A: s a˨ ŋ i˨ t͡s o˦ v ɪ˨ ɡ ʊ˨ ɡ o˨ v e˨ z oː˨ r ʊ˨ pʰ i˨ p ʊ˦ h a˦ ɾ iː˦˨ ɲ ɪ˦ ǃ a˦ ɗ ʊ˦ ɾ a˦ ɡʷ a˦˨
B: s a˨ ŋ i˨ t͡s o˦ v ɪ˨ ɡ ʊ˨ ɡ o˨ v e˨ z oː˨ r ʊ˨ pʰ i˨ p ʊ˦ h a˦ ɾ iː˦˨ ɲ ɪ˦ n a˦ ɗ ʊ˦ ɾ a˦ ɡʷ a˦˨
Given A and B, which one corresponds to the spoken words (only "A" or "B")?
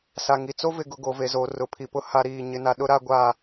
B